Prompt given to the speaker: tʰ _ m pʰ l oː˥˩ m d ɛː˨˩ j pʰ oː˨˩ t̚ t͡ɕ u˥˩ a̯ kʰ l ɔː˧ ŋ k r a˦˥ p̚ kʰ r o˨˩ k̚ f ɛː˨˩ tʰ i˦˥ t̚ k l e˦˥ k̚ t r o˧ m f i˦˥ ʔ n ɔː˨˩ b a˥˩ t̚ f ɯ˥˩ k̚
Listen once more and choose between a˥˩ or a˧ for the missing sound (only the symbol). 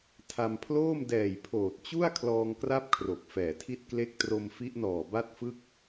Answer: a˧